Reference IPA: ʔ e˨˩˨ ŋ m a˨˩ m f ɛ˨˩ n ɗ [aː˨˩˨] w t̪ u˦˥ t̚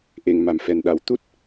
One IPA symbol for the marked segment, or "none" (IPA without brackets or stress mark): a˨˩˨